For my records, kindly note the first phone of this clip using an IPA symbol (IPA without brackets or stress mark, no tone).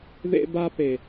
ð